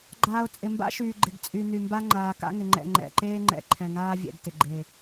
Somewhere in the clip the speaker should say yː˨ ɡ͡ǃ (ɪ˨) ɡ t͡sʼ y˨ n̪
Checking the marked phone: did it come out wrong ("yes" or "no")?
no